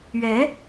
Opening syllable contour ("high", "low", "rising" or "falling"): rising